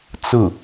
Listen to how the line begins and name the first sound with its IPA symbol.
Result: t͡s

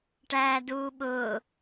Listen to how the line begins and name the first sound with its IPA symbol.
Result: ʈ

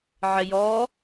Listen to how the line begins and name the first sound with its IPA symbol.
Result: ʕ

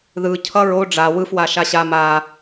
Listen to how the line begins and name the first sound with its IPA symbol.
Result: ð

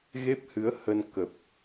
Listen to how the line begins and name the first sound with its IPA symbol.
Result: ɣ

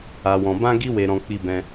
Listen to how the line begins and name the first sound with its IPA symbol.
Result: a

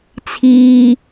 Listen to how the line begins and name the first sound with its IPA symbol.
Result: t͡sʰ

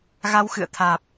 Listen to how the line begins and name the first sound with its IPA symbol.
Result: ɣ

